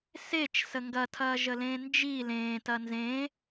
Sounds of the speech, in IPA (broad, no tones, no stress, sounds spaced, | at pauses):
s e t͡ʃ s ə ŋ ɡ ɐ tʰ ɐː ʒ ə l ẽː n d͡ʒ i l ẽː t ɐ n z ẽ